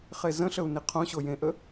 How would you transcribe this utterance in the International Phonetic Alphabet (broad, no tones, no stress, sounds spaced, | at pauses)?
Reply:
χ e z ə̃ ɬ ə u̯ n i qʰ õ ɕ o j ẽ ʔ ə